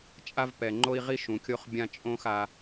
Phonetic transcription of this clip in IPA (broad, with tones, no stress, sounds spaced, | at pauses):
t͡ʃʼ a˦ v p ɛ˨ ŋ͡ǃ o˦ i̯ ʁ i˦ ʃ ũ˨ kʲ o˦ χ bʲ ã˦ t͡ʃʼ õ˦ x a˦